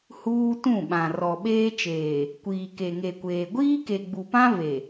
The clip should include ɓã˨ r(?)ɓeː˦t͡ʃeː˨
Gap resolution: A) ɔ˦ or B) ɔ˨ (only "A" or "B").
B